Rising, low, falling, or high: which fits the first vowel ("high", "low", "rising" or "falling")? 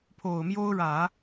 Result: low